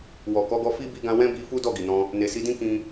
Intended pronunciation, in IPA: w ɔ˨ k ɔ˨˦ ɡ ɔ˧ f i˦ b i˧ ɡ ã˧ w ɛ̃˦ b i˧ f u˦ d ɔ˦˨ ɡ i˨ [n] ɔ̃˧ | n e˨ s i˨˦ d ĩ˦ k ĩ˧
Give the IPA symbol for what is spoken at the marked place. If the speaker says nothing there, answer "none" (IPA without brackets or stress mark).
n